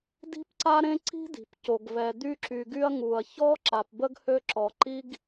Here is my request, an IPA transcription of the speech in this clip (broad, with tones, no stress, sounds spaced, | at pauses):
d i̤˥ p ǀ a˥ ɾ ẽ˥ ǀ i̤˥ d i̤˩ p c o˩ ɡ v ɛ˩ d̪ y˥ ǁ y˩ ɡ y˥ ɐ̯ ŋ u˩ ɐ̯ ç ɔ˥ ǁ a˩ p b ə˥ ɡ h ø˥ ǁ ɔ˩ ǃ i˥ ɡ